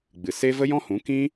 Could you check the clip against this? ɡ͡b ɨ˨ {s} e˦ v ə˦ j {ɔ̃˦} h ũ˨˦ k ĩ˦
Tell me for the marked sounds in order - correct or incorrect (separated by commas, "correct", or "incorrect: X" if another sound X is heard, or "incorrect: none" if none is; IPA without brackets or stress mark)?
correct, correct